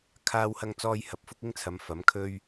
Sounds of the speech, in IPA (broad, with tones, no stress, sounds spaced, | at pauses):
kʰ aː˧ w h ɐ˧ ŋ t͡s ɔː˧ j h ɐ˨˥ p̚ f ʊ˥ k̚ ɪ˥ ŋ t͡sʰ ɐ˨˧ m f ɐ˨˥ m kʰ ɵ˥ ɥ